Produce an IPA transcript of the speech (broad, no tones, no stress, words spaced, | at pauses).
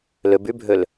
lɵbʉbʱɵl